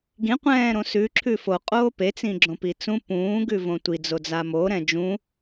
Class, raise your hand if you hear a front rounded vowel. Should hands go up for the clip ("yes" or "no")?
no